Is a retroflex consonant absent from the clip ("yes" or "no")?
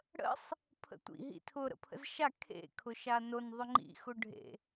no